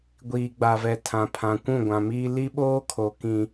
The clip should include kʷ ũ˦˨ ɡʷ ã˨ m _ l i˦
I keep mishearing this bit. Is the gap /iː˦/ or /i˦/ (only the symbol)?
iː˦